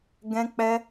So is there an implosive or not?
no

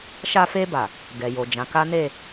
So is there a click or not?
no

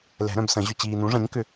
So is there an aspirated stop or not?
no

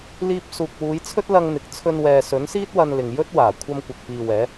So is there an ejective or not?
no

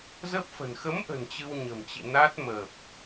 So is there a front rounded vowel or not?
no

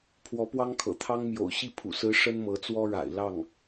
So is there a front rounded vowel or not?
no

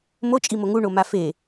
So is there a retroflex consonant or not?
yes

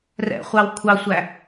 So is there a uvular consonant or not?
yes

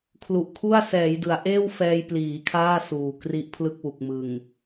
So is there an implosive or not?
no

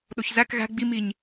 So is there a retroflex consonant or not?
no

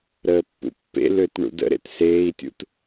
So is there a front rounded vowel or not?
yes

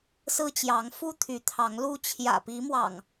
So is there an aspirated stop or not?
yes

